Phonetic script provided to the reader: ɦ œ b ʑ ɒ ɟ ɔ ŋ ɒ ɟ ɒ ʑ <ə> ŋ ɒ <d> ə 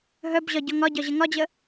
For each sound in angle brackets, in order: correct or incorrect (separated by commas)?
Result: correct, incorrect